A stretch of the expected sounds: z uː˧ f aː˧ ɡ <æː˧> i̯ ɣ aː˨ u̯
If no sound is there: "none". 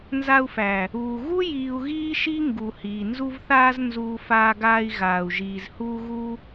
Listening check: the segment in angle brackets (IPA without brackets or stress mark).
aː˧